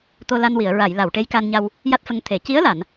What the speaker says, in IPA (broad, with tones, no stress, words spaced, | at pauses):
t̪o˧la˧nwi˨˩˨ə̯ɹa˨˩˨j la˨˩˨wʈe˧˥jka˧nɲa˧w | ja˦˥t̚fə˧ŋt̪ʰe˨˩˦ ci˧˥ə̯la˨˩˨n